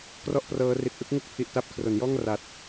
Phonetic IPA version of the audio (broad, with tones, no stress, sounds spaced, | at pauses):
k r ɔ˥˩ ʔ p r ɤː˦˥ r i˨˩ t̚ ʔ ɯ˦˥ k̚ ŋ u˥˩ k̚ pʰ i˨˩ ʔ t a˦˥ p̚ kʰ r o˩˦ n j ɔː˥˩ ŋ r a˨˩ t̚